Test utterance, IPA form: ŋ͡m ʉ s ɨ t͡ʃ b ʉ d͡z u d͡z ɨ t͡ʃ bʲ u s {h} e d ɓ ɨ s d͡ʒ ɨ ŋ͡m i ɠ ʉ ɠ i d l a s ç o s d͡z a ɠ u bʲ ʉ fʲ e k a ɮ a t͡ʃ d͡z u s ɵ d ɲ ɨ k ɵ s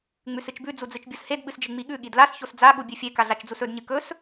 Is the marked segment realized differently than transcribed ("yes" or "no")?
no